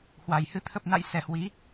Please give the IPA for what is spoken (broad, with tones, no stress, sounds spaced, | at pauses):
h w a˨˩ j h ɨ˧ t̪ʰ ə˨˩ p̚ n a̰˧˨ j s ɛ˨˩ h w i˨˦